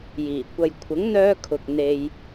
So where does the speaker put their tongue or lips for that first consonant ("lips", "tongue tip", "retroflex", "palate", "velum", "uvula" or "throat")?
palate